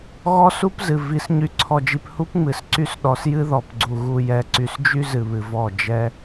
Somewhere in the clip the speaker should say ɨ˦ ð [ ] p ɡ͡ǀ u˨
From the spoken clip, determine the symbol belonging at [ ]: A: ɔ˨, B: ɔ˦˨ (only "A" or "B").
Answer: A